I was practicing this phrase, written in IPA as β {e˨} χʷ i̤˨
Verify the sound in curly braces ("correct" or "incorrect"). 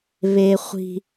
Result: correct